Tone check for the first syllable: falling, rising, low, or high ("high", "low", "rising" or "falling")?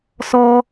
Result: high